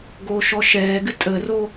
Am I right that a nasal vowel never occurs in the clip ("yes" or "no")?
yes